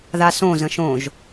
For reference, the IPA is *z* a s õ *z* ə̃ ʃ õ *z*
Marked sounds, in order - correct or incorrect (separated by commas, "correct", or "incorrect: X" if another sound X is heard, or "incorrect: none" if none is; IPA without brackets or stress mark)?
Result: incorrect: ð, correct, incorrect: ʒ